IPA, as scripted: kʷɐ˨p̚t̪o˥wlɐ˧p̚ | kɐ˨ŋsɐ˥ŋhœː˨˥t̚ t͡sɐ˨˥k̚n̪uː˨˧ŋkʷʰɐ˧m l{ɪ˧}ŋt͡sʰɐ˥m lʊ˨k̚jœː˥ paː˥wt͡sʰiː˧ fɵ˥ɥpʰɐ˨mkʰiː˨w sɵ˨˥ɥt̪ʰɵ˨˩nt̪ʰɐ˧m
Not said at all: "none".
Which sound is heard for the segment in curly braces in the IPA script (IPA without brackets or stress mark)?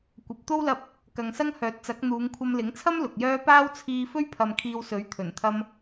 ɪ˨˥